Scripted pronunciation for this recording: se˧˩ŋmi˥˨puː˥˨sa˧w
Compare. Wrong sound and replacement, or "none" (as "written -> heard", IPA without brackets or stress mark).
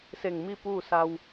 none